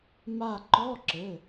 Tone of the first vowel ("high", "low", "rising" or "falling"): falling